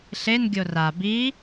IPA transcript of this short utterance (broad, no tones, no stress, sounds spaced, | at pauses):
ɬ e n ɡʲ o r a b i